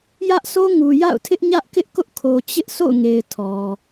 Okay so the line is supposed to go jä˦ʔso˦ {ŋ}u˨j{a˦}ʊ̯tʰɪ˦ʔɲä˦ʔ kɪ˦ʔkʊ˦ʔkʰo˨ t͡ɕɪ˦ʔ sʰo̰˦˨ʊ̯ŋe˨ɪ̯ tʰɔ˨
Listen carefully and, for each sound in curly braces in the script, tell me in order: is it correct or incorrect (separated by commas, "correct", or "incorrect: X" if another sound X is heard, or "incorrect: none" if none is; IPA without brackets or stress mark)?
correct, incorrect: a̰˦˨